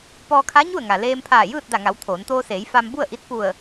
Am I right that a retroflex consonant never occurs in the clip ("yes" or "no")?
yes